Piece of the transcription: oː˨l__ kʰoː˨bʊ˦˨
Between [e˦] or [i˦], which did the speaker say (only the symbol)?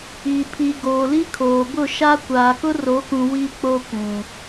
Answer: i˦